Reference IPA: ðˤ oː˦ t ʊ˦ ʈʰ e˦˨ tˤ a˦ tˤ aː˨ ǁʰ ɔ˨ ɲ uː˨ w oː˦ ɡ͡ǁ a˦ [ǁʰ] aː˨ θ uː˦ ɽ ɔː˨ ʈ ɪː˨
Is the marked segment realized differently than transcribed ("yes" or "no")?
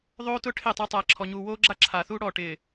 no